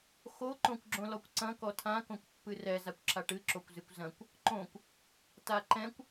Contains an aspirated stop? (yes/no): yes